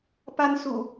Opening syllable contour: high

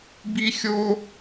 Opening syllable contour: high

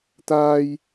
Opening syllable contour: high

